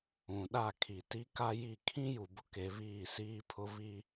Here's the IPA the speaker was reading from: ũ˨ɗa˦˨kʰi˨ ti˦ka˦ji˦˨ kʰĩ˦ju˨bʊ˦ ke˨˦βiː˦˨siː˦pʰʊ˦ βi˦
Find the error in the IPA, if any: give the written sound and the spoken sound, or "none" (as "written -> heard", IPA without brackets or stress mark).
none